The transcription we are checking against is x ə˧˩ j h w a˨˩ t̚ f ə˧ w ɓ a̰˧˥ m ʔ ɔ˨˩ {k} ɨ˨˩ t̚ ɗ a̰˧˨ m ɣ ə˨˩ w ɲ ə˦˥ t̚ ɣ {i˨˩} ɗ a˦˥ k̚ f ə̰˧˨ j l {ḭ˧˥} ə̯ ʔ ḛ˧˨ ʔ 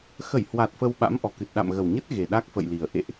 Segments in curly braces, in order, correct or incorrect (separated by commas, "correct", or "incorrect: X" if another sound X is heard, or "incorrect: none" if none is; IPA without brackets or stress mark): correct, incorrect: e˨˩, incorrect: i˨˩